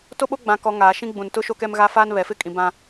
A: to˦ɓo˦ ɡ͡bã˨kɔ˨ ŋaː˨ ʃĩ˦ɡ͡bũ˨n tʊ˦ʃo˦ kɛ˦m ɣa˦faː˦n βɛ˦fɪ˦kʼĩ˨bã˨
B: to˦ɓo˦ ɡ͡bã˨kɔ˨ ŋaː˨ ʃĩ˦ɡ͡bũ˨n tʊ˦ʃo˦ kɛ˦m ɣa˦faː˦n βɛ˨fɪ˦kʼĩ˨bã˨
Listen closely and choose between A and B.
B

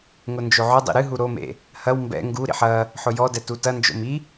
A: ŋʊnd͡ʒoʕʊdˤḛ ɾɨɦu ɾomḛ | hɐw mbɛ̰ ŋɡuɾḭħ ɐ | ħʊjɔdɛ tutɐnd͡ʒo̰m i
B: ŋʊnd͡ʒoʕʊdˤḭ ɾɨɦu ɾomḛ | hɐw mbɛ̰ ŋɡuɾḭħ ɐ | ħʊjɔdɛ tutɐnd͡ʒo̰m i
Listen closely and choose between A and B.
B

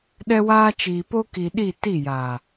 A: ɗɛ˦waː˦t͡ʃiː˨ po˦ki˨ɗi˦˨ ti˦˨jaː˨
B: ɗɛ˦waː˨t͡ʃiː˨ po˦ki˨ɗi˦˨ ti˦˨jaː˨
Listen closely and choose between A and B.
A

